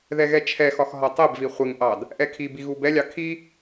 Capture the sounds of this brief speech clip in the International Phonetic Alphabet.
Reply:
ð ɛ ɣ ɛ t͡ʃʰ ɛ x ɒ x ɦ ɒ tˤ ɛ b v i χʷ ɪ ŋ ʔ ɑ d | ʔ ɛ kʰ i b i ɣ u b ɛ lʲ ɑ kʰ i

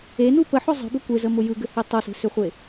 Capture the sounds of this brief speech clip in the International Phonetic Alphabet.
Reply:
e n u p ə ħ ʊ zˤ ə̤ b ʏ kʷ e z ə m ʊ j ɯ ɡ ʏ h e tˤ ʊ s e̤ s ʏ χʷ e

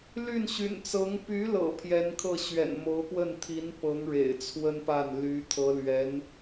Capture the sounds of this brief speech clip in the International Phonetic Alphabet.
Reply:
l y˥˩ n ɕ y̰˨˩ n t͡s ɤ˧˥ ŋ p y˧˥ l ɤ̰˨˩ pʰ j ɛ˧˥ n kʰ ɤ˥˩ ɕ ɥ ɛ̰˨˩ n m o˧˥ ʊ̯ p w ə˥˩ n t̪ʰ i˧˥ n p ɤ˧˥ ŋ ɻ ḛ˨˩ ɪ̯ t͡sʰ w ə˥ n p a˥˩ n l y˧˥ t̪ʰ ɤ˧˥ l ɥ ɛ˧˥ n

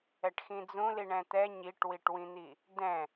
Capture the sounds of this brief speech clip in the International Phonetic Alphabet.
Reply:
ɛ ʈ x ĩ d͡z ũ l i ɳ ɛ̃ t̪ ɛ ɲ i ʈ w i ʈ w ĩ n̪ i | d ɛ̃

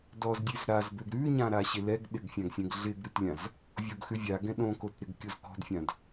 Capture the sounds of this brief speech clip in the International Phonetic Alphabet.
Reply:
d ɔ z dʲ ʉ z ɾ a z b ø ɡ ɾ ʉ ɲ ã ɾ a ɕ ɪ l ɛ ɡ ɗ ɪ ɡ fʲ ã ɡ sʲ ɛ̃ ɡ ɮ ɪ ɡ ɾ ʉ t lʲ ã z | vʲ o ɡ x ʉ vʲ a ɡ ɛ̃ ɗ õ k o t ɾ ɪ ɡ kʲ o z k ɔ̤ d fʲ ã d

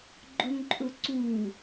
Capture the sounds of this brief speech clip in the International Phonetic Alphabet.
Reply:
ɡ͡ǃ ʊ ŋ ǃʼ ʊ ǀ u

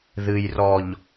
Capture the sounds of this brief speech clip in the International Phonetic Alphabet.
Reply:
ð ɨ˨ j r ɔ˨ ʎ

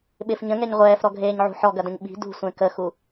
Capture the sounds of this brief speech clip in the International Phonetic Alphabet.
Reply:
ɓ ɪ f ɲ ə̃ ŋ ɛ ɲ ʁʷ ɛː f ɾ ɔ ɡʱ eː ɲ ʕ ṳ ħ ɔ ɡ ɐ d ə̃ ɲ ɓ i̤ d ṳ sʷ ẽ k ə x u

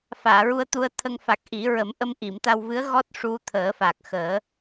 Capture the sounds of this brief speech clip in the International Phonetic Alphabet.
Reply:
f aː˨˩˨ ɹ u˧ ə̯ t̪ u˧ ə̯ t̪ʰ ə˧ ŋ f a˨˩ k̚ ʔ i˨˩˦ ɹ ə˨˩˦ m ʔ ə˧ m ʔ i˨˩˨ m t̪ a˧ w v ɨ˧˥ ə̯ ɣ ɔ˦˥ t̚ ʂ u˧ t̪ʰ əː˨˩˦ f a˨˩ k̚ x əː˨˩˦

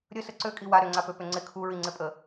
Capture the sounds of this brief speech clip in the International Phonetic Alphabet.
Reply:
ɾʲ ə s ə ǀ ø kʼ i w a ɾ ʏ ŋ͡ǀ a p ø p ʏ ŋ͡ǀ ɪ kʰ u ɹ i ŋ͡ǀ ɪ pʼ ə

